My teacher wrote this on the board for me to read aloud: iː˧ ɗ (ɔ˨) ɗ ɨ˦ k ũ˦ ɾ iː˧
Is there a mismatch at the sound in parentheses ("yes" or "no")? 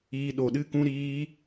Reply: yes